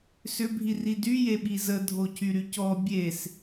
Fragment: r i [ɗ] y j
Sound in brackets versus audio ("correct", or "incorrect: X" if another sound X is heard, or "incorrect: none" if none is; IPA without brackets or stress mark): incorrect: d